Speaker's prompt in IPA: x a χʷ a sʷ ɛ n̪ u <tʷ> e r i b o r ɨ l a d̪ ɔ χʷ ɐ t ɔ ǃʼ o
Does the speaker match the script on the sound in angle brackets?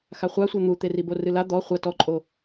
no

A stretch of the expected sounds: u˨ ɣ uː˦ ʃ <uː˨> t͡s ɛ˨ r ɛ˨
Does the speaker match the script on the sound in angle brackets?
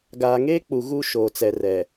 no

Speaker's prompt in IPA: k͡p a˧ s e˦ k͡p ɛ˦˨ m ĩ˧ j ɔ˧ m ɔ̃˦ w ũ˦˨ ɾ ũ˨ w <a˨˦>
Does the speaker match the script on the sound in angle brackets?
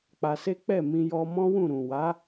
yes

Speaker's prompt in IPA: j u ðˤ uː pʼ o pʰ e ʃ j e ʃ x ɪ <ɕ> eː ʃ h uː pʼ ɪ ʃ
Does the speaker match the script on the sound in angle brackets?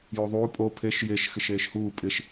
no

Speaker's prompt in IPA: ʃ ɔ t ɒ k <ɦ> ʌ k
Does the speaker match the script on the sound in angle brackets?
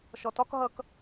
yes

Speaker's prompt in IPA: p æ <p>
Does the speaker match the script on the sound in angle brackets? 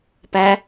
no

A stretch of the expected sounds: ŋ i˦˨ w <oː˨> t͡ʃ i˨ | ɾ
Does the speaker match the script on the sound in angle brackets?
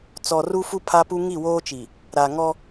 no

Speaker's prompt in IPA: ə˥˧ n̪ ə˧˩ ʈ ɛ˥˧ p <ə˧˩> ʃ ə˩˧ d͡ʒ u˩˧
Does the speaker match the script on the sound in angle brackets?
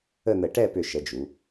no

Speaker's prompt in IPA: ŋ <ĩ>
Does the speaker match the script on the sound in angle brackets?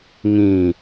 yes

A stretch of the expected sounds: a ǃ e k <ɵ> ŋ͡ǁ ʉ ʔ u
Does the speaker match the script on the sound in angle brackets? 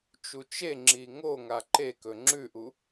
yes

